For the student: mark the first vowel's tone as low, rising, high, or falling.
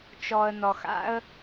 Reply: low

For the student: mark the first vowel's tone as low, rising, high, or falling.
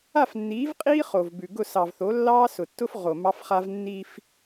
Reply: falling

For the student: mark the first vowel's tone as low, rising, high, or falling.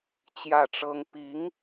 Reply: falling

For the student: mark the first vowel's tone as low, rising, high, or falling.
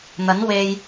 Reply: rising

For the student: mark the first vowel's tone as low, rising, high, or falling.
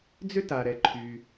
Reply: high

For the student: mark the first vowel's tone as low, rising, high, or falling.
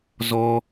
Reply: high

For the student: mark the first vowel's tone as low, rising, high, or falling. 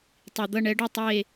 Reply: low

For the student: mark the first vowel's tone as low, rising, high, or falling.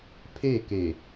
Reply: falling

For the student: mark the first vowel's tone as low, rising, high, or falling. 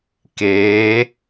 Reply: rising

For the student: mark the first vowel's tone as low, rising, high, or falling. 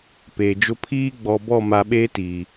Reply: low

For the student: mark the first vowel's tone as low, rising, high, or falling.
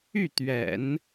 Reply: falling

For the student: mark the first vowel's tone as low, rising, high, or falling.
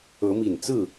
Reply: rising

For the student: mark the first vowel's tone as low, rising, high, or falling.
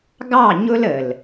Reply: falling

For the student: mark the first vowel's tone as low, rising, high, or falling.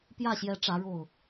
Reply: falling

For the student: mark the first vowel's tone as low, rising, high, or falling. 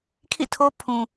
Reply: falling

